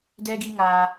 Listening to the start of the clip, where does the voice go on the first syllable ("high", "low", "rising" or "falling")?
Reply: high